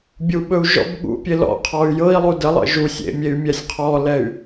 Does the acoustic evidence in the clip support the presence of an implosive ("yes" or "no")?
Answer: yes